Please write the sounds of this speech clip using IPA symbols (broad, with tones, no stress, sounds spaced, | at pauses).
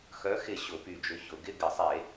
x œ˨˥ x ɪ˧˩ ɕ ʊ˧˩˧ p y˧˩ d͡ʒ ʏ˨˥ ç ʊ˧˩˧ ɡ ɪ˧˥˧ ɡ ɪ˧˩˧ sˤ e˧˩˧